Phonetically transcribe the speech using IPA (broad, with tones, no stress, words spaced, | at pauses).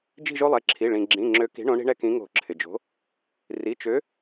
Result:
d͡ʒi̤˦˨ʒo˦lˠɛ˩˧˩ǁʰi˩˧˩ ɭĩ˩ɡ͡ǁĩ˩˧˩ ŋ͡ǁø˨˥ki̤˨˥ ɳõ˨˥ɳi̤˦ɳɛ˦kĩ˨˥ ŋo̤˧˩˧ǁʰɪ˩d͡ʒo̤˨˥ | ri˩˧˩t͡ʃø˨˥